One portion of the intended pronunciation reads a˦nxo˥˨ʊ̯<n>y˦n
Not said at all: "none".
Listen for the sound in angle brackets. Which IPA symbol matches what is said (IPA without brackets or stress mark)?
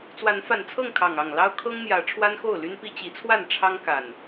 l